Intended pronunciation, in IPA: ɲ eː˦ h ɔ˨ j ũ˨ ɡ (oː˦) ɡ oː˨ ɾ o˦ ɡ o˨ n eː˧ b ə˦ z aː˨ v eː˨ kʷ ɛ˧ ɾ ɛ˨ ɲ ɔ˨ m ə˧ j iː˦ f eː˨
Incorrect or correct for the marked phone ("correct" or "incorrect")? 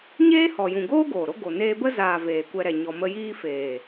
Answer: correct